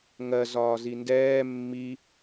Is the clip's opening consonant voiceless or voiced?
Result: voiced